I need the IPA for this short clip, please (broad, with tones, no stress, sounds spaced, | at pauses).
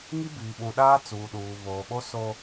ŋ i˦ b iː˨ ɓ ũ˨ ɗ aː˦ t͡s uː˨ ɗ uː˨ β oː˨ ɓ o˦ s o˦